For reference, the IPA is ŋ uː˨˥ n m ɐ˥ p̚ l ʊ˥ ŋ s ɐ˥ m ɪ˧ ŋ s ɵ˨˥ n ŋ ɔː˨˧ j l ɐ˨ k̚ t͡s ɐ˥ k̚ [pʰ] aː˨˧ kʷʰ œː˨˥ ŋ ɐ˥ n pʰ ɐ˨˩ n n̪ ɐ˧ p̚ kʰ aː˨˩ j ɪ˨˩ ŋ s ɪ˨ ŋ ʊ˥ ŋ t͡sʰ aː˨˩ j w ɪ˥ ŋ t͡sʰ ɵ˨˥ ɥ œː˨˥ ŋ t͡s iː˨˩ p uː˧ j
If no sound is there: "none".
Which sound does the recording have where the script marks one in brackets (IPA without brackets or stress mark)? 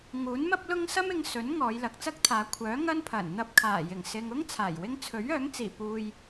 t̪ʰ